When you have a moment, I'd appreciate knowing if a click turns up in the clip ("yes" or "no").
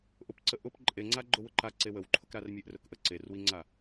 yes